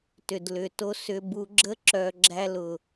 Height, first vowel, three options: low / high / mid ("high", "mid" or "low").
high